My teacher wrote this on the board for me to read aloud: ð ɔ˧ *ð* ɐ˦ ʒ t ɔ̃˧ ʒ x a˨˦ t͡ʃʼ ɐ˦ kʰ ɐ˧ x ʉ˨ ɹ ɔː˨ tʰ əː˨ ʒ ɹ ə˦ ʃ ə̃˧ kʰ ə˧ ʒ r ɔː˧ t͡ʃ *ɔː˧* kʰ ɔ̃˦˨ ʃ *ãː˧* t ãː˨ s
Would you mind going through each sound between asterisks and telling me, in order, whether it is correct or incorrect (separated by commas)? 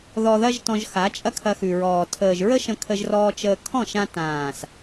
correct, incorrect, incorrect